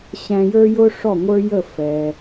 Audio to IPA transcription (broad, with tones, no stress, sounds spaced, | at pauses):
ɕ æ̃˧ j ə˞˥ j ʊ˥ ʂ ɔ˥˩ ŋʷ ə˞˥ j ə˥˩ f ɛ˩